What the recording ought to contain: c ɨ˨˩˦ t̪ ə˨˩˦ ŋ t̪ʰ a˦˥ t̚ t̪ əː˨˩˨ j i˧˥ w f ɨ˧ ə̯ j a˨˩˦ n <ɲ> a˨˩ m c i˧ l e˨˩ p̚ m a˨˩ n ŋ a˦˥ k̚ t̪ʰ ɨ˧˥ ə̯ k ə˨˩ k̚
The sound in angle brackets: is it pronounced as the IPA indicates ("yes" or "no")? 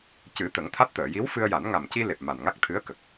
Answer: no